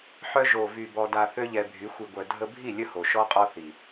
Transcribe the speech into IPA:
ħ œ˧ ʒ o˨ v y˨ b ɔ˧ d a˧ θ ø˦ ʎ ɛ˧ bʱ y˨˦ xʷ i˨ ɡʷ œ˨ dʱ ə˧ bʱ i˦˨ lʲ ə˦ h o˨ ʃ ɔ˦ qʼ ɔ˦ θ i˨

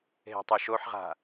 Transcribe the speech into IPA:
ɦ e̤ tˤ o ʃ o ħ ʁ a̤

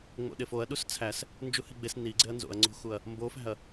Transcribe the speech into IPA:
ŋ͡m o̰ ɗ e f o ɐ̯ ɗ u s t͡sʰ æ s | n d͡ʒ u h i ɡ͡b e s n i ɡ͡ǀ e ɐ̯ n z o̰ ɐ̯ ŋ͡ǀ o̤ x u ɐ̯ | m b o f æ̤ ɐ̯

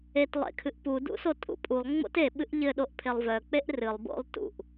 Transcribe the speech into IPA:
e t lˠ ḛ kʰ ɨ ʔ p u d ṵ s o tʼ ṵ pʼ u lˠ ŋ͡m o̰ t e ɓ ɨ ʔ ʎ ɘ ɗ o ʔ pʰ e lˠ v œ k͡p e ʔ r ɨ lˠ b o̰ lˠ t ṵ ʔ

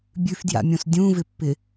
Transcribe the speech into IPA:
bʲ ʉ f d j a̰ mʲ õ s dʲ ũ v ɪ pː ɪ

